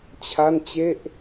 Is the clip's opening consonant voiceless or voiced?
voiceless